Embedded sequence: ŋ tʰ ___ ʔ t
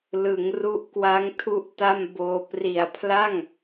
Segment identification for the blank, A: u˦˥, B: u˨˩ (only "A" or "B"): A